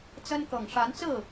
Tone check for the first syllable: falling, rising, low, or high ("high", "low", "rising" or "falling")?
high